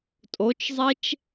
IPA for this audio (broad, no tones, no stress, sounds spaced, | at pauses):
tʼ o t͡ʃ zˤ e t͡ʃ